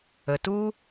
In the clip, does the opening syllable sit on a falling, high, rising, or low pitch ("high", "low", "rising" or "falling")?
low